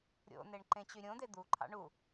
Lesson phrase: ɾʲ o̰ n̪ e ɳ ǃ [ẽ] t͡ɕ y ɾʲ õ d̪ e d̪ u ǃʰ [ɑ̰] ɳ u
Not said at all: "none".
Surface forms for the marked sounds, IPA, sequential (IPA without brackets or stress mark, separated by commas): ẽ, ɑ̰